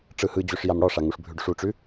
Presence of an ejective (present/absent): absent